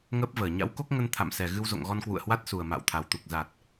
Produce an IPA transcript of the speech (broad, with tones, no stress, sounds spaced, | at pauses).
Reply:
ŋ əː˦˥ p̚ v əː˧˩ ɲ a̰˧˥ w k o˦˥ k̚ ŋ ə˧ n t̪ʰ a̰˧˨ m s ɛ˨˩ ɣ ɨ˧ w z o̰˧˨ ŋ ɣ ɔ˧ n k w ṵ˧˨ ə̯ h w a˦˥ t̚ s u˨˩ ə̯ m a̰ː˧˨ w t̪ʰ a˨˩ w t̪ u˨˩ k̚ z a˨˩ t̚